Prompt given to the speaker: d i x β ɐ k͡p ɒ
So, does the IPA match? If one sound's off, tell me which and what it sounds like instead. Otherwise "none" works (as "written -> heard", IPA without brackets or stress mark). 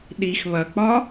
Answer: d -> ɗ